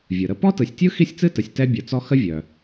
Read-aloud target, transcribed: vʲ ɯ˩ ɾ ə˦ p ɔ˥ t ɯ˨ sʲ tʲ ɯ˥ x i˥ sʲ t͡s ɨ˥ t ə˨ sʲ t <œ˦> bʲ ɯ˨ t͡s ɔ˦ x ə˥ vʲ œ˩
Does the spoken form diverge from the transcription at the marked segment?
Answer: yes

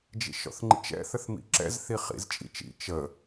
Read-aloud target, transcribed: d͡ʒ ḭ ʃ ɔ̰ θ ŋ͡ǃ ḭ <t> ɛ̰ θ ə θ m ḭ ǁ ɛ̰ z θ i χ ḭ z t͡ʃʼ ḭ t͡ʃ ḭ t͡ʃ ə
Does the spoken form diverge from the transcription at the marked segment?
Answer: yes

